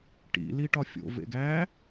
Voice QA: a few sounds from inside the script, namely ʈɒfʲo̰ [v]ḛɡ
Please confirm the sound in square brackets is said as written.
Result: yes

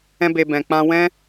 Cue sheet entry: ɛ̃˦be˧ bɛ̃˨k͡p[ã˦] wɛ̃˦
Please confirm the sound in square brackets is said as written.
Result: no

